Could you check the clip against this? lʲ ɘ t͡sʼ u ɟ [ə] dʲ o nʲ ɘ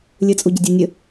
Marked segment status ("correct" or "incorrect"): correct